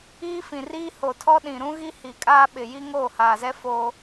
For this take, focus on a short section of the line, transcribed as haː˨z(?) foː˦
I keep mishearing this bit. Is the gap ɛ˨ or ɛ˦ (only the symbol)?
ɛ˦